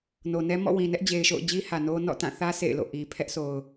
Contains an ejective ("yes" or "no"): no